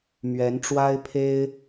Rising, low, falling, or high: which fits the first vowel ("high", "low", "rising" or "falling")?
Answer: rising